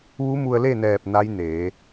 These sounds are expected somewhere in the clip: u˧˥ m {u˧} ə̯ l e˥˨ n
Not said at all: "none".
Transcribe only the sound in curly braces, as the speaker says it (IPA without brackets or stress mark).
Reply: u˧